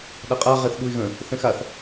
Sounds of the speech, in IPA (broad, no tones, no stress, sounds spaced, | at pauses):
ɗ a qʼ a ʁ ɛ θ ɗ u ɪ̯ ɣ ə̃ | θ ɛ̃ x a θ